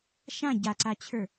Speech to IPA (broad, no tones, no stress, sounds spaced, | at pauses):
ʃ ã ɟ a ǀ a t͡ɕʰ ə˞